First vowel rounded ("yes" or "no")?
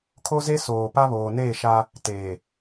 yes